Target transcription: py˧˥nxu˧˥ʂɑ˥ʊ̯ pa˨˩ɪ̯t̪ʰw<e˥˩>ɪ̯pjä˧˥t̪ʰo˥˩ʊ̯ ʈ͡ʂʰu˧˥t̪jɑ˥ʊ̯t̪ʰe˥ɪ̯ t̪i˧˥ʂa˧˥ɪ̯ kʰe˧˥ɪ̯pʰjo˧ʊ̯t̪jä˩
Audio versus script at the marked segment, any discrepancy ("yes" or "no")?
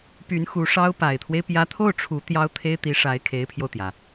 yes